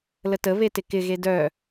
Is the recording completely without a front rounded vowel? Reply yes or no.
no